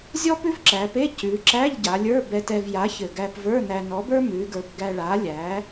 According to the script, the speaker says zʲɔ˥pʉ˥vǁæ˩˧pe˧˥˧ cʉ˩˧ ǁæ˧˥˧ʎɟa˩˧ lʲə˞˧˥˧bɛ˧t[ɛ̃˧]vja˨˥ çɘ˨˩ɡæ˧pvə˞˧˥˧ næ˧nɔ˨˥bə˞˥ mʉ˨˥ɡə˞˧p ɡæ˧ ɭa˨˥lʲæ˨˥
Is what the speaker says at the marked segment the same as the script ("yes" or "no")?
no